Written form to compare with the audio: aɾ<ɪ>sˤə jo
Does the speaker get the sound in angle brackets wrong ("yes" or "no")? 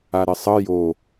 no